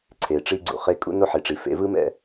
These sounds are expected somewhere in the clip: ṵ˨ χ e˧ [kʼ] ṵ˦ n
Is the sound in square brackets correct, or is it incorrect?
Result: correct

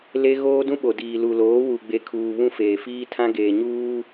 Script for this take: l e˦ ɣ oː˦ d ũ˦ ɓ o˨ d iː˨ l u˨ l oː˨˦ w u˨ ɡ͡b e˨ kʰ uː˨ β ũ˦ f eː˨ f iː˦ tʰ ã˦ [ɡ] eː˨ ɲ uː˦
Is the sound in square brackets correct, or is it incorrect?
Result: correct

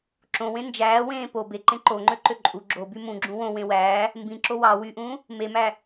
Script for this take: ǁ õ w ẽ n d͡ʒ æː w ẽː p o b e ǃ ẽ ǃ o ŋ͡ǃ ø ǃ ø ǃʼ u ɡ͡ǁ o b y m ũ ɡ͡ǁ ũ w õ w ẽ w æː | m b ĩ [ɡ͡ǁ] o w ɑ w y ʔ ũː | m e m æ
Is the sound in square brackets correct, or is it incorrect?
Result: incorrect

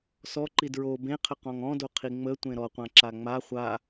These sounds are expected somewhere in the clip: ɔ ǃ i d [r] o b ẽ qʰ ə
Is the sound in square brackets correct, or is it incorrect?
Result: incorrect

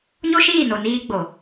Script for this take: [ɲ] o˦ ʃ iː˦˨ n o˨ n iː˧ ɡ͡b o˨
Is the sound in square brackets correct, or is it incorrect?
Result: correct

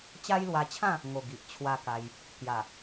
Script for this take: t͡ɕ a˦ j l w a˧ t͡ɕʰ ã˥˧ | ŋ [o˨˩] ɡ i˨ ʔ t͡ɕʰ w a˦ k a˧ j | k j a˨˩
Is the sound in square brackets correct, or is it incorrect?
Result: correct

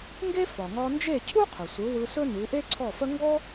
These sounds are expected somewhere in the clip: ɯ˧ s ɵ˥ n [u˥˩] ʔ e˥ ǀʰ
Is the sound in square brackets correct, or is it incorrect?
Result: incorrect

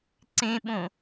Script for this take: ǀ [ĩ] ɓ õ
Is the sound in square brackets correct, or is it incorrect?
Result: incorrect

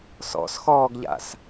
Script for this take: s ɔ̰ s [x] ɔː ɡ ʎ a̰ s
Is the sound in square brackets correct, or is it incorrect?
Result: correct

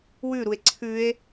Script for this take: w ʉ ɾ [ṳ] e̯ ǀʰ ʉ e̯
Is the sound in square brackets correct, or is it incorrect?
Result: incorrect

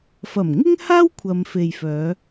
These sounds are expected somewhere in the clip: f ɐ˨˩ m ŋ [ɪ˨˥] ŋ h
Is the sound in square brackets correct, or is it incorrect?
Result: incorrect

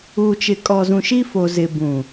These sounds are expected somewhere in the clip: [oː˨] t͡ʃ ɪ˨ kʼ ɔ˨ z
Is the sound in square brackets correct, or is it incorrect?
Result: incorrect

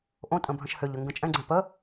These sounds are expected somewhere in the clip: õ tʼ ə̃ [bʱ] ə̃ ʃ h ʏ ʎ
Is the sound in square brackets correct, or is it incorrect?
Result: correct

